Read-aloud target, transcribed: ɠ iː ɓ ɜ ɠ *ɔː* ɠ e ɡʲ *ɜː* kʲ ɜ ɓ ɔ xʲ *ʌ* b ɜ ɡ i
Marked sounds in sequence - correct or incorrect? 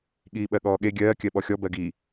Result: correct, correct, incorrect: ɔ

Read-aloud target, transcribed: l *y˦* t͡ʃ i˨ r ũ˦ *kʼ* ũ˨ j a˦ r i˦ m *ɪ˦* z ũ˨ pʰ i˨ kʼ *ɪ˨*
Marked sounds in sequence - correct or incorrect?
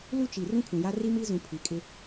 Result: incorrect: u˦, incorrect: kʰ, incorrect: i˦, incorrect: ɪ˦

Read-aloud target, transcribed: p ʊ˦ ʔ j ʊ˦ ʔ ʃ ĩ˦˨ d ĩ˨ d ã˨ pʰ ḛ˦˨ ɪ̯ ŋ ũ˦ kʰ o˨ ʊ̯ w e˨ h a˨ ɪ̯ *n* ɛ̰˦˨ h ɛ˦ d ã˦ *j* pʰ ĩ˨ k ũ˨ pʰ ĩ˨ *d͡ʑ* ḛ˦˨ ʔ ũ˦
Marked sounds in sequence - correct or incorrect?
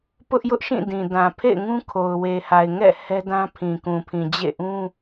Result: incorrect: ŋ, incorrect: none, correct

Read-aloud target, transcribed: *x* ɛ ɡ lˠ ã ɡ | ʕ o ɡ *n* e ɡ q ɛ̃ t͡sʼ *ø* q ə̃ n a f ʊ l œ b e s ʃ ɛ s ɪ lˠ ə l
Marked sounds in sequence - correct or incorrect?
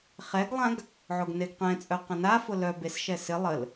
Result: incorrect: χ, correct, incorrect: œ

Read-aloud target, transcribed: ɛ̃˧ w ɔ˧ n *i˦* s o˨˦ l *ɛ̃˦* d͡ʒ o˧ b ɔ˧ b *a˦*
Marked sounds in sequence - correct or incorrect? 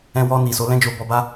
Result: incorrect: i˨, correct, correct

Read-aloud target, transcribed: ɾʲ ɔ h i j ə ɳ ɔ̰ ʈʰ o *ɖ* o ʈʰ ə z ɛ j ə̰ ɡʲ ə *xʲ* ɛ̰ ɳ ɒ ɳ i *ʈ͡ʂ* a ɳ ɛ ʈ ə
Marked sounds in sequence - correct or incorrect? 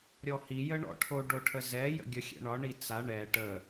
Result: correct, correct, incorrect: t͡s

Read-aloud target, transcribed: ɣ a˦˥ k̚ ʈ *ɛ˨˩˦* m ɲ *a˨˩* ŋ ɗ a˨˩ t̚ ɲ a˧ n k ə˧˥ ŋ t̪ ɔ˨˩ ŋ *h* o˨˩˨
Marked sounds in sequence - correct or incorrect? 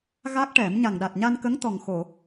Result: correct, correct, incorrect: x

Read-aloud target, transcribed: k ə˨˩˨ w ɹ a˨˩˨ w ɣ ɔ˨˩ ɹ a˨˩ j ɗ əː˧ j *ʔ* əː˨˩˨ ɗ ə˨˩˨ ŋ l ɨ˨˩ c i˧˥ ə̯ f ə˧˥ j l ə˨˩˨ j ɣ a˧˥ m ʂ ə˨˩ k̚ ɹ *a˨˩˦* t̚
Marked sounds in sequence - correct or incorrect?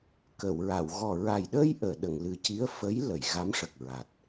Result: correct, incorrect: a˨˩

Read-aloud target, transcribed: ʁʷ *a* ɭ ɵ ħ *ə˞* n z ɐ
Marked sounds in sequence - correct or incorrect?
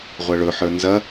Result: incorrect: ɐ, correct

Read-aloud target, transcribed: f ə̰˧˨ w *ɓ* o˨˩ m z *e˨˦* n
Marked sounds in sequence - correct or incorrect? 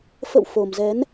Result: incorrect: f, incorrect: ɛ˨˦

